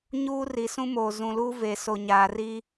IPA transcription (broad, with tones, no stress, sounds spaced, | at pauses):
ɲ uː˦ r i˨ s ũ˦ m oː˨ z ũ˨ l uː˦ v e˨ s o˨ ɲ aː˨ r i˦